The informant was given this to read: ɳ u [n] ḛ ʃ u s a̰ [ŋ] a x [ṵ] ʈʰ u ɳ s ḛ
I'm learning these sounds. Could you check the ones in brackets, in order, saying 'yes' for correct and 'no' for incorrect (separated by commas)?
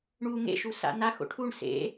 no, no, no